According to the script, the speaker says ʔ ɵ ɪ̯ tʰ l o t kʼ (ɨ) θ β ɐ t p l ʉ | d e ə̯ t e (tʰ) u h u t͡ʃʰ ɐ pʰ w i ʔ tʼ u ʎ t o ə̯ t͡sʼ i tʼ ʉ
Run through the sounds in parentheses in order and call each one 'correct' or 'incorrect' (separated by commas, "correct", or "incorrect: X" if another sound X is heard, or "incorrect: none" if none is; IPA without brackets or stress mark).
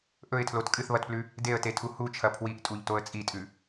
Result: correct, correct